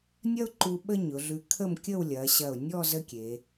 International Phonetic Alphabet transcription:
nʲ ɐ˥ ʊ̯ ǃ u˧ ɓ ə˥ ɲ ʊ˩˧ ɮ ʉ˧ kʰ ə˥˧ m kʲ ə˥˧ w lʲ ɐ˩˧ ɕ ɐ˧˩ ʊ̯ nʲ ɔ˥˧ z ə˥ kʲ e˩˧

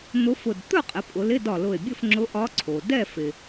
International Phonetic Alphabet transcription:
n̪ ʊ˧˥ f ʊ˧˩ d t̪ ɵ˥˨ qʼ ɪ˩˧ pʼ ʊ˩˧ l ɪ˧˥˧ d ɒ˧˩ l ʊ˧˩ e̯ bʲ ɵ˥˨ f ŋ͡ǁ ʊ˧˥ ʔ ɒ˧˥ ǀʰ o˩ d ɛ˥˨ f ɪ˩

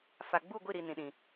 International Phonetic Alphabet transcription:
f a˨ ɡ͡b u˦˨ ɡʷ i˦˨ ɾ i˨ n ĩ˨ ɗ ĩ˨

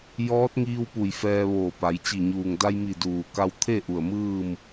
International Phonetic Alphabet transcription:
j ɔː˧˥ t̚ ŋ iː˧ w p u˧˩ j f ɛː˧ ʋ oː˧˩ p a˩˧ j t͡ɕ i˧˩ ɲ uː˩ ŋ d a˧ j m i˧˩ d uː˩ k a˧ w t̪ʰ e˥˨ ʔ u˧˩ ə̯ m ɯː˥˨ m

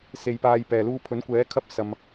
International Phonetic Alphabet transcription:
s e˧ j p aː˧ j p ɛː˨ l uː˧ pʰ ɵ˨˥ n kʷ ɛː˨˥ kʰ ɐ˥ p̚ s ɐ˧ m

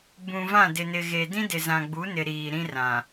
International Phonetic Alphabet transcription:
b ũ˨ v ã˦˨ d ɪ˨ n ɪ˨ ɣ e˨ d ĩ˦ d ɪ˨ z ã˨ ɡ͡b u˨˦ n ɪ˨ ɾ iː˨ ɾ ĩ˦ r ã˨

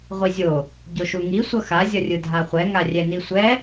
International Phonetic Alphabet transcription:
ʁʷ i zʲ o | ɟ o ʃ u ŋ i sʷ ʌ x a zʲ ʌ rʲ ɯ dʱ a χʷ ɛ ŋ a rʲ ɛ n i sʷ ɛ

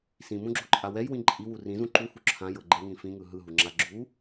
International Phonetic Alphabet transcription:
s ĩ m ũ ɡ͡ǁ o ǃʼ a w ɛ j w ĩ ǃʼ i w u r ĩ z ũ ǃ u h u ǁʰ ã j ɤ ɡ͡ǃ e ŋ ĩ f ĩ ŋ ɯ ɦ ɯ ɦ u ŋ͡ǁ a ɡ͡ǁ u

